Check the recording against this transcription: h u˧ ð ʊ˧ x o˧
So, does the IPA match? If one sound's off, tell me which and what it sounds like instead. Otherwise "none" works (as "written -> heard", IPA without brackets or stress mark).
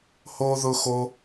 u˧ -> o˧